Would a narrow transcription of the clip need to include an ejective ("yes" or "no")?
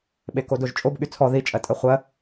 yes